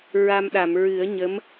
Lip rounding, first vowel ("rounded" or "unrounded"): unrounded